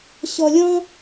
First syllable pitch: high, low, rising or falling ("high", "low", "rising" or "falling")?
low